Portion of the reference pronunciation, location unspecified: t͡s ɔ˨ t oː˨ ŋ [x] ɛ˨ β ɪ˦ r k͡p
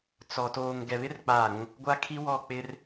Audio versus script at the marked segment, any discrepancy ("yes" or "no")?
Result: yes